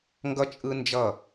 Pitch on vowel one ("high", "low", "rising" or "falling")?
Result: high